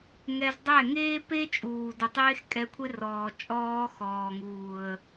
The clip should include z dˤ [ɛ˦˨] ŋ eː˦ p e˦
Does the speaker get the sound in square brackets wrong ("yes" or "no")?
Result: no